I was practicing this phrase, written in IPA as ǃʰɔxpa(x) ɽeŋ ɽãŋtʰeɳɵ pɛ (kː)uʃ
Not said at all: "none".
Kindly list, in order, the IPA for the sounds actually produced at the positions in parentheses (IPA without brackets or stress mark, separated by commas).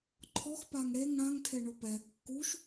ŋ, kː